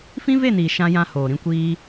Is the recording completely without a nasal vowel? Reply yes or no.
no